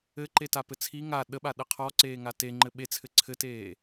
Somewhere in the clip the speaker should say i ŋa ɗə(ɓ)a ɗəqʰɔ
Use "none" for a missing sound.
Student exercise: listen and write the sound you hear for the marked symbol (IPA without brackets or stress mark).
ɓ